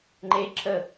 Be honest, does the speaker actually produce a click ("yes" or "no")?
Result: yes